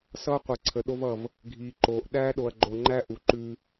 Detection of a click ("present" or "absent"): present